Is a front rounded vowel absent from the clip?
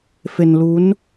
yes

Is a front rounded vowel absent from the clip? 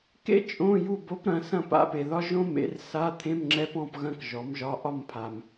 yes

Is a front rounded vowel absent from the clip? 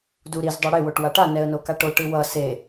yes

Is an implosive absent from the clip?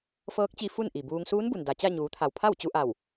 yes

